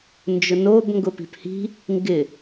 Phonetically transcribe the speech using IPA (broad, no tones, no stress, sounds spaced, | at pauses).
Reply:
n d͡ʒ ʊ n o b ŋ ɡ ʊ p i̤ p h i̤ | ŋ ɡ ɪ